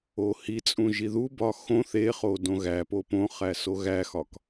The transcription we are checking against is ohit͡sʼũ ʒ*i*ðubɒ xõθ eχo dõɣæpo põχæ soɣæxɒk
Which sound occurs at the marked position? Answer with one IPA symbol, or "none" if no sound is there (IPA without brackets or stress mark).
i